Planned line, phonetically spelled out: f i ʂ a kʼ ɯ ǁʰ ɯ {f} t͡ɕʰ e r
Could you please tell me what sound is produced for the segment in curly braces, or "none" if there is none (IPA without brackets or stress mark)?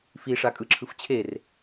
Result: f